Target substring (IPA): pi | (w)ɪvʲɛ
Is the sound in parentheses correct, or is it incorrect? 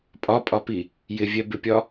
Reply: incorrect